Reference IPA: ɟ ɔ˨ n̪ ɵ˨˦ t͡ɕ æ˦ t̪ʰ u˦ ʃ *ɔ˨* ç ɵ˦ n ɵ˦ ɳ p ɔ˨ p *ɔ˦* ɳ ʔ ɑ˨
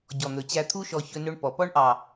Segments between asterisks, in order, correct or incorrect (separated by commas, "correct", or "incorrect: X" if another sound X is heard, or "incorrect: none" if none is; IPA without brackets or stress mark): correct, correct